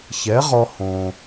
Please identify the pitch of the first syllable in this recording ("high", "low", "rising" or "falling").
rising